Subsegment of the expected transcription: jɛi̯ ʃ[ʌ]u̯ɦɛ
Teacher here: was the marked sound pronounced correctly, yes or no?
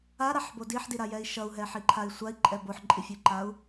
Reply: yes